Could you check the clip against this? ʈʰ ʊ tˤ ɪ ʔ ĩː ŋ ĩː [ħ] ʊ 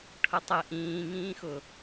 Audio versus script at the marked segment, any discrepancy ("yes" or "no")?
yes